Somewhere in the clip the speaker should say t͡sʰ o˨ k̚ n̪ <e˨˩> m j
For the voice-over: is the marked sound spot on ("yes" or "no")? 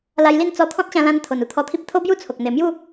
yes